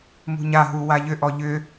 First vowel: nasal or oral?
oral